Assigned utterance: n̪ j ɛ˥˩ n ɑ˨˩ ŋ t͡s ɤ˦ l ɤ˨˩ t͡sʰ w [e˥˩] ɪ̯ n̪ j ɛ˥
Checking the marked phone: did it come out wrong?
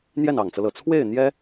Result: no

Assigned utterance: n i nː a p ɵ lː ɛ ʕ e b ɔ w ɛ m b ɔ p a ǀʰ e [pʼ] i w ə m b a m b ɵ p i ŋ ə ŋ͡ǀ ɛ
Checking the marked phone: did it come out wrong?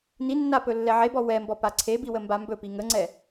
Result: yes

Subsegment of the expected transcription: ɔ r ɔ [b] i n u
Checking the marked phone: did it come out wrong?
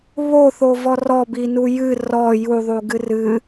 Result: no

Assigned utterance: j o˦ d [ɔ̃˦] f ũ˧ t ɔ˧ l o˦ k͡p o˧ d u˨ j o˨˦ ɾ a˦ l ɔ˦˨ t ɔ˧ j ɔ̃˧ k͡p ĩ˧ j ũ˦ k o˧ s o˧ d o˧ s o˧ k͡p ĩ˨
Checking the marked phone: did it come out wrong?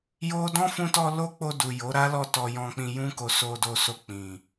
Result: no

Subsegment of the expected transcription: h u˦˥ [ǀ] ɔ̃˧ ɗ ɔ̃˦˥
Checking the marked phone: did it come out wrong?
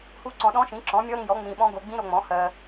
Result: no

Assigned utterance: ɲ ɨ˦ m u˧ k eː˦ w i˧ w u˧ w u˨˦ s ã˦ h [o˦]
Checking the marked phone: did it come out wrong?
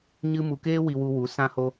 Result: no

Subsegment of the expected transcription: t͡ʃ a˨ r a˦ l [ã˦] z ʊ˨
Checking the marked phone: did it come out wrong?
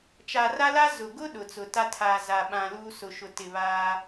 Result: yes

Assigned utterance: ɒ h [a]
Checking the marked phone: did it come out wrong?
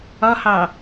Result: yes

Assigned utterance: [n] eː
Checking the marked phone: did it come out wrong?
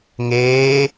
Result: yes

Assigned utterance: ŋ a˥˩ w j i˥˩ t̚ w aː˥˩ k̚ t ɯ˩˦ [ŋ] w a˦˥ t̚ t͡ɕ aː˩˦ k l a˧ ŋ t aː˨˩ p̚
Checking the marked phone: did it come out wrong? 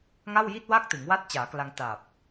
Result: no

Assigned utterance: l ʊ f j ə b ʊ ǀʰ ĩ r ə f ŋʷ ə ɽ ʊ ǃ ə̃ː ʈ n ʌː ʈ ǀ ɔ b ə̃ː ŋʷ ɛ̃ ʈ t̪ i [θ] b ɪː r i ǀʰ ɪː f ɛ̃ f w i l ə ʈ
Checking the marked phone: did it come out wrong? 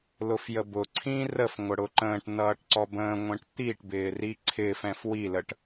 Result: yes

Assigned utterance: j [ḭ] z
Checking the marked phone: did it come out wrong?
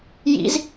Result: no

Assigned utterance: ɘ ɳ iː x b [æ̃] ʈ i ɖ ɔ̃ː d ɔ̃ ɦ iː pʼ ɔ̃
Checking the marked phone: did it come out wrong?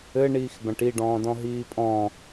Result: no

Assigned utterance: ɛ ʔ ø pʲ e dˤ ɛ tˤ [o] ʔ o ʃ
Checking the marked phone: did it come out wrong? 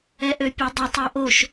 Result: no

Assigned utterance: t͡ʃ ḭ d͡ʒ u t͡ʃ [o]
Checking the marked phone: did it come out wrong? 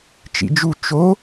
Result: no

